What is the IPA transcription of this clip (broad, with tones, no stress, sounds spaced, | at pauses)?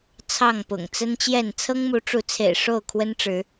t͡sʰ ɑ˥˨ ŋ p ʊ̰˨˩ ŋ t͡s ə˦ n t͡ɕ j ɛ˥˨ n t͡sʰ ɤ˦ ŋ m u˨˦ ʈ͡ʂ u˨˦ t͡sʰ ḛ˨˩ ɪ̯ ʂ o˥˨ ʊ̯ kʰ w ə˦ n ʈ͡ʂ ɻ̩˨˦